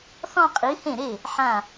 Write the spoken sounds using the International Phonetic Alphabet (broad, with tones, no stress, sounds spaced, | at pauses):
θ ɔ̃˥˧ qʼ i˨˥ h ẽ˥˩ ɾ e˥˩ | ħ ã˧˩